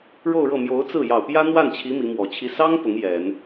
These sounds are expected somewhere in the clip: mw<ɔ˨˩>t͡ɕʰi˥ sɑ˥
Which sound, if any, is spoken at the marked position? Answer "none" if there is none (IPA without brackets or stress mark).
ɔ˨˩